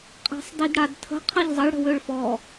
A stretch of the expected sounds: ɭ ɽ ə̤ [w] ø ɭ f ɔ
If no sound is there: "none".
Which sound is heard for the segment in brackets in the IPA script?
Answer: w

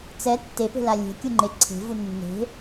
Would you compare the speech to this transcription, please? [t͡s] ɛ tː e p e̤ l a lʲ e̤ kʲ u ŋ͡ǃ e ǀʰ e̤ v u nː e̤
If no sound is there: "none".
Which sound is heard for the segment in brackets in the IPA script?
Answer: t͡s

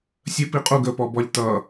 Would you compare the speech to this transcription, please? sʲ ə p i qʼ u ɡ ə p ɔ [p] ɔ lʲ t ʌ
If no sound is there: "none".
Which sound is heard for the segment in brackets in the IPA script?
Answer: b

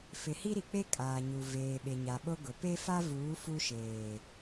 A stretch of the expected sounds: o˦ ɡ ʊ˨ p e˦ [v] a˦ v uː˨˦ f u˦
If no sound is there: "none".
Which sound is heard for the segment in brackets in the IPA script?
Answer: f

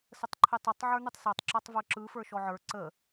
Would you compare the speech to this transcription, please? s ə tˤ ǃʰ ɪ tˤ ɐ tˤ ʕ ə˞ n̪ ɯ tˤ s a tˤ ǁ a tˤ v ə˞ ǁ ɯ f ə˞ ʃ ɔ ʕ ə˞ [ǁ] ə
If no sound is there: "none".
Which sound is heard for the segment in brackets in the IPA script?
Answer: ǀ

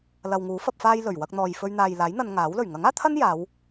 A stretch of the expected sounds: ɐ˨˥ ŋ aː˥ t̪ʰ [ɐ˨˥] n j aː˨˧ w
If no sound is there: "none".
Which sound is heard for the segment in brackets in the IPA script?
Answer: ɐ˥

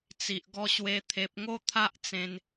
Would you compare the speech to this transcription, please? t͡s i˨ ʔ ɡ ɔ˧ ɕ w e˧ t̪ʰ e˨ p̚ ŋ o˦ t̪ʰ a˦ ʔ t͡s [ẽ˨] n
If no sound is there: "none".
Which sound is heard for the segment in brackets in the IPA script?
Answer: ẽ˧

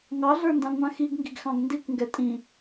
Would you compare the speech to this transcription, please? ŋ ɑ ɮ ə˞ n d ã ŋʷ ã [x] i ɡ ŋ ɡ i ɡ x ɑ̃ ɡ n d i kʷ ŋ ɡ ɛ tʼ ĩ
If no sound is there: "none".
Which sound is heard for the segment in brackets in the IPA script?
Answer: x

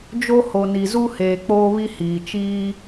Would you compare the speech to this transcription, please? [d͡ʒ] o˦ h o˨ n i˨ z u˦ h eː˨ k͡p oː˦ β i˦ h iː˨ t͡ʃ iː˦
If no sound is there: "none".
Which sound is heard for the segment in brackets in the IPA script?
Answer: d͡ʒ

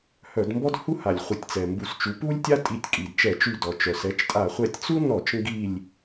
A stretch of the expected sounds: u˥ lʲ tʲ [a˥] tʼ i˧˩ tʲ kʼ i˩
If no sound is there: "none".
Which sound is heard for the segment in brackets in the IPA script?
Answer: a˥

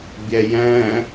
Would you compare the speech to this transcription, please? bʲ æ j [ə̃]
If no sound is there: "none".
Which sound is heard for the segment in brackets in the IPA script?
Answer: æ̃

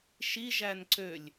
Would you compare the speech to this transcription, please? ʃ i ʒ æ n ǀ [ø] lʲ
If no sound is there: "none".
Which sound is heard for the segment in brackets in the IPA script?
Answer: ø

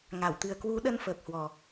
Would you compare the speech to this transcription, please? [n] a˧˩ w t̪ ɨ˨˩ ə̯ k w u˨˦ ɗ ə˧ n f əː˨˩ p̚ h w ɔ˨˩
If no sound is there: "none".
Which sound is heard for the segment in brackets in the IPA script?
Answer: ŋ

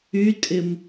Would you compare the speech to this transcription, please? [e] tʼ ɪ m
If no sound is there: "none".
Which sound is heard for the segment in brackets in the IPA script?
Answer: y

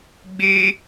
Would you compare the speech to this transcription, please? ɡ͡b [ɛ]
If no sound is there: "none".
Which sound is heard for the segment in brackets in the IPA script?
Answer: e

